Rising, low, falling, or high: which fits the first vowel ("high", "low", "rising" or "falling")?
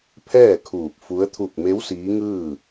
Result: falling